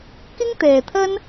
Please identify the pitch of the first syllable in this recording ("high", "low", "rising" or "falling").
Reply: high